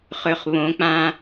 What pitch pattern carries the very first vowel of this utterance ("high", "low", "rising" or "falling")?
low